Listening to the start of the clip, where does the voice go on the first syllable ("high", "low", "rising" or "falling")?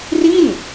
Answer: falling